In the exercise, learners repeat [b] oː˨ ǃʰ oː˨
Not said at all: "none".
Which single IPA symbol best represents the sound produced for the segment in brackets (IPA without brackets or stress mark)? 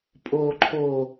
pʼ